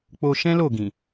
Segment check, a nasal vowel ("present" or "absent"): present